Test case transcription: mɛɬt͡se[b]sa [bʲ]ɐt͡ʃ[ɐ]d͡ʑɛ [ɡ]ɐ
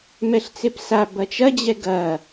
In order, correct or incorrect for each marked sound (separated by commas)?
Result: incorrect, incorrect, correct, correct